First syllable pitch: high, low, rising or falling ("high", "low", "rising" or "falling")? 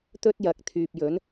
high